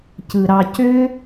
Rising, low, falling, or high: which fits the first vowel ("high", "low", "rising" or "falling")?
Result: low